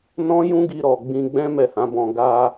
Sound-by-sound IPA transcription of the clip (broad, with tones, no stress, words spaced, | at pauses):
nɔ̃˦jũ˦ɡi˧ ɾɔ˨ ɡ͡bĩ˧ɡ͡bɛ̃˦ mɛ˦˨hã˨˦bɔ̃˧ ɡa˧